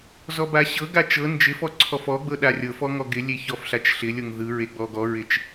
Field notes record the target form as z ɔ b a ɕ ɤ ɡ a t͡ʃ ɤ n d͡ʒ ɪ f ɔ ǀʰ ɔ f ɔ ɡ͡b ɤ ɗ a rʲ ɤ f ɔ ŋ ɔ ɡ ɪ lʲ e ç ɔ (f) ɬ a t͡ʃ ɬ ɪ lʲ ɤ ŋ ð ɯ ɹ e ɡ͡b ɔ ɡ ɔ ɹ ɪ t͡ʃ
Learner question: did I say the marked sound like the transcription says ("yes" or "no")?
yes